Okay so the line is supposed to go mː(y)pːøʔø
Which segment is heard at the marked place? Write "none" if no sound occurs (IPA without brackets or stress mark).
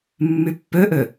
y